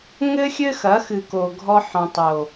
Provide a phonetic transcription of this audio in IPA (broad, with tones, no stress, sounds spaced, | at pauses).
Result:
ŋ ɘ˦ xʲ ɘ˦ x ɐ˨˦ x ɨ˨ k o˨ ɡʱ ɔ˦ ħ ɔ̃˨ tˤ o˨